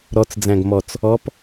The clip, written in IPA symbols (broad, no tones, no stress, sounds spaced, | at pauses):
ɾ ɔ t͡s d͡z æ̃ ɡ m ɔ t͡s | ɔ p